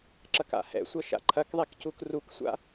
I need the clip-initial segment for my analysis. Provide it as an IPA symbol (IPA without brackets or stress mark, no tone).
ǁ